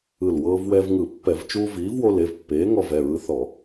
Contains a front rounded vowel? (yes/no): no